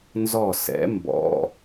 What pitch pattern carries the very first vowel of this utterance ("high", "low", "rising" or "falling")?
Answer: falling